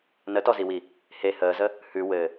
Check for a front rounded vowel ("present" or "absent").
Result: absent